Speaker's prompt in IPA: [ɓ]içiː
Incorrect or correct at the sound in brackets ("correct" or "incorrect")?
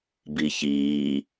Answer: incorrect